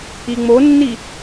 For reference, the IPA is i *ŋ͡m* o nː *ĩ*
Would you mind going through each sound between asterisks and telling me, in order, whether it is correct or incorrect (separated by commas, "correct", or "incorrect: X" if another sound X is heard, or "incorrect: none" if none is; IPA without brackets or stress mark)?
correct, incorrect: i